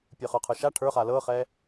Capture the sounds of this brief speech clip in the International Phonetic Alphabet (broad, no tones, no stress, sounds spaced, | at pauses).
pʲ ə˞ χ ə˞ qʰ ə˞ ʃ a ʈʰ ə˞ χ a l ɤ χ ɛ